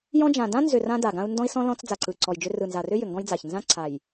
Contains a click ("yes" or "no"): yes